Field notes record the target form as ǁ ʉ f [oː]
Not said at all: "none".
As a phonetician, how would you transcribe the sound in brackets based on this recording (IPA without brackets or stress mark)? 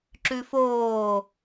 oː